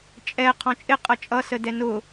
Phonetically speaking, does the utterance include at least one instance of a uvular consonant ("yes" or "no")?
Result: yes